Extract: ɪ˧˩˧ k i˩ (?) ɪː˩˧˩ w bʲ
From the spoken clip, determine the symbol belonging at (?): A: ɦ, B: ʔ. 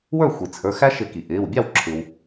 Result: B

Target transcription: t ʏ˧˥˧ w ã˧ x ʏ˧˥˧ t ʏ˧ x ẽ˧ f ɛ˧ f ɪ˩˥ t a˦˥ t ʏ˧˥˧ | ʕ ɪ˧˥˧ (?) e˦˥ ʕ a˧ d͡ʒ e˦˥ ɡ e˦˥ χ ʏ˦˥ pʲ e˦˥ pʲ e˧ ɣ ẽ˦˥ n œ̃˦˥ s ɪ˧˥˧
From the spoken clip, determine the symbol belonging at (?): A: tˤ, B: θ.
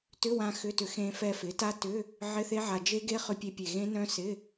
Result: B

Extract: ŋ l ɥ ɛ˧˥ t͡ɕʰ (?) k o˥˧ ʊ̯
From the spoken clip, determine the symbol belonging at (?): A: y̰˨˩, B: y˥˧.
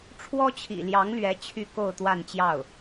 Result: B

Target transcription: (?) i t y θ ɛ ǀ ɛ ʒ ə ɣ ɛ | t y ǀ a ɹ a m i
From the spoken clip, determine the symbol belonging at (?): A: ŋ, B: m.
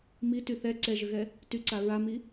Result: B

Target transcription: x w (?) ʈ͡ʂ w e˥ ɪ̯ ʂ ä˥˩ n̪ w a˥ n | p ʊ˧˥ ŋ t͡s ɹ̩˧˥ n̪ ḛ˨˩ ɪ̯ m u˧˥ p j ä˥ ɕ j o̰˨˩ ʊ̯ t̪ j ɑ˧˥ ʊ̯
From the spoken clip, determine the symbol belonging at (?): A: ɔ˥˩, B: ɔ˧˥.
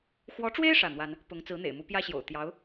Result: B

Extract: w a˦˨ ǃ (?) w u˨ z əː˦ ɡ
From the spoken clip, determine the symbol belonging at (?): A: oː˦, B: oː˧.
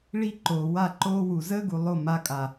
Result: A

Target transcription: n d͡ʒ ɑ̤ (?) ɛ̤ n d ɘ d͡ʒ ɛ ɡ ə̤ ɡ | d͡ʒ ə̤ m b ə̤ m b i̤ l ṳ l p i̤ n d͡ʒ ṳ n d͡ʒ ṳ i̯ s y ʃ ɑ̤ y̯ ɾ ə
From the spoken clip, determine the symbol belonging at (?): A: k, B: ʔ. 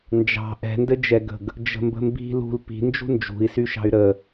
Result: B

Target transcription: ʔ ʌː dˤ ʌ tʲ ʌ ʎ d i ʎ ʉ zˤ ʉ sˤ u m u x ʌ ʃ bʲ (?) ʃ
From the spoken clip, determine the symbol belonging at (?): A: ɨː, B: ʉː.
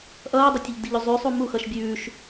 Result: B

